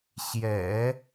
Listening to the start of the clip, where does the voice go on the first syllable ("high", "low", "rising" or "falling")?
low